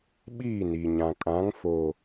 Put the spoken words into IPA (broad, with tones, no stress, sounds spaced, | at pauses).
ɓ iː˦˨ n iː˨ ɲ ã˨ kʼ ã˨˦ ŋ f oː˨